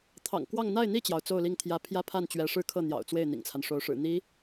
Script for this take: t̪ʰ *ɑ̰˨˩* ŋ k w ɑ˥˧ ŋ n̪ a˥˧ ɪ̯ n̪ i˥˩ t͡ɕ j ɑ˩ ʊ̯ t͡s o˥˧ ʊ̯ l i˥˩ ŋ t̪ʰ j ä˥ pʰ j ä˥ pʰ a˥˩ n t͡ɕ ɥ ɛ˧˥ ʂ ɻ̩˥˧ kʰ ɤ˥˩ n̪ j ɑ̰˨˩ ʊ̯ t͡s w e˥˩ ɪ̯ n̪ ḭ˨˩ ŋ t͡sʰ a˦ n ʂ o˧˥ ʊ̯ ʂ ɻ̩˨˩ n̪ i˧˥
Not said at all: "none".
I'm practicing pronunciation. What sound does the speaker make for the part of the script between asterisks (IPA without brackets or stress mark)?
ɑ̰˨˩